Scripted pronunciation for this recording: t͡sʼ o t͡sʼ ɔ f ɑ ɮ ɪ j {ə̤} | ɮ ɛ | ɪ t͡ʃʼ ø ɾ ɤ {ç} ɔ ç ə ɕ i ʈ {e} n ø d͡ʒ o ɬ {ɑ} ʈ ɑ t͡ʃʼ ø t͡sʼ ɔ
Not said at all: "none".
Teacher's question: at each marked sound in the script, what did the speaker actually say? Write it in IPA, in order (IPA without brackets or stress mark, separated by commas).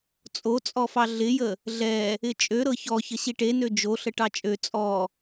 ə, ç, e, ə